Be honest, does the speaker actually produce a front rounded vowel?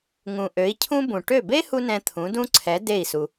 yes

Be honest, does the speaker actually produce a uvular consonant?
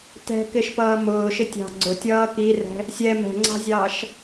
no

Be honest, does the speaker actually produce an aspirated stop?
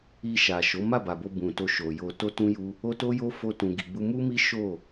no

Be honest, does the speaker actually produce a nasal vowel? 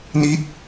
no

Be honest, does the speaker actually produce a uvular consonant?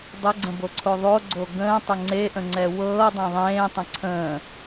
no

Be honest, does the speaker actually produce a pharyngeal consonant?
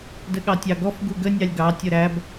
no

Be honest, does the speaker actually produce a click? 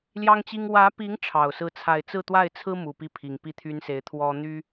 no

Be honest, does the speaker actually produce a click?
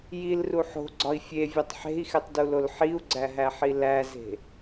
yes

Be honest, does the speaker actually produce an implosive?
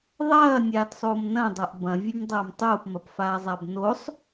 no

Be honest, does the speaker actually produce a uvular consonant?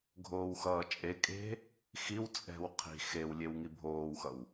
yes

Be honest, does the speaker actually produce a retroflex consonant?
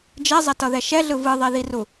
no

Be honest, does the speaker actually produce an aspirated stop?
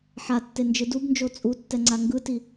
no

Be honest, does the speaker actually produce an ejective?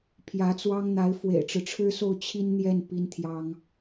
no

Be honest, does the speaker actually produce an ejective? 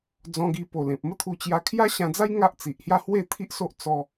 no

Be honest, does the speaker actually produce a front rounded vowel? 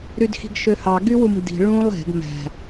yes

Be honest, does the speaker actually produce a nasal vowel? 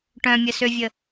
yes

